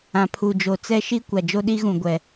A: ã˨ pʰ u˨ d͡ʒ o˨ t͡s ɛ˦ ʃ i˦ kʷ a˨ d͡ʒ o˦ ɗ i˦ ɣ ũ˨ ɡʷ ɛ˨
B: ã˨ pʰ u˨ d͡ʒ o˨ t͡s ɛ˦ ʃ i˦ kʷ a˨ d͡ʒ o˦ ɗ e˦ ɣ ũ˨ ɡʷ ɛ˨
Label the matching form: A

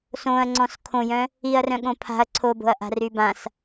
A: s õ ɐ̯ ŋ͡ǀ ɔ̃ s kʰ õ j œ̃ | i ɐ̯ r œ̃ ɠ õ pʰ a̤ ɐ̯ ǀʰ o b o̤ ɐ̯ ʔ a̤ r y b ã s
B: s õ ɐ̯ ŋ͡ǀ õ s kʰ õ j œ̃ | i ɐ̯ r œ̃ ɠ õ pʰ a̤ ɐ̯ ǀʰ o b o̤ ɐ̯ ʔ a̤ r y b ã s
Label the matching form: A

